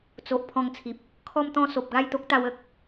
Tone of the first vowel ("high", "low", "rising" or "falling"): low